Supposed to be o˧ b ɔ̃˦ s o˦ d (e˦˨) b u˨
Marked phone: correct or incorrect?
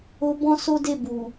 correct